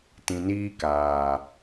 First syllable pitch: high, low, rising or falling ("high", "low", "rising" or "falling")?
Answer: low